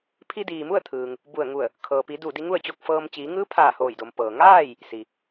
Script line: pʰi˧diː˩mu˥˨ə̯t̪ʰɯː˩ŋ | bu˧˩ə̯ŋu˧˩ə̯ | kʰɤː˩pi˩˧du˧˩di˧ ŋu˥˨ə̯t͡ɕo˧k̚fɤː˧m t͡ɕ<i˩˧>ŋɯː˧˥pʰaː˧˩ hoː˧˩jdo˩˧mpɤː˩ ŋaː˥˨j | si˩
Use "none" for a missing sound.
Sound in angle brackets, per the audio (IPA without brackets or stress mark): iː˩˧